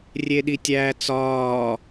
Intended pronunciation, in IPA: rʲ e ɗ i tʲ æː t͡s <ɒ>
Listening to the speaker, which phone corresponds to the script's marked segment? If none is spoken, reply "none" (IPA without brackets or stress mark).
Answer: ɒː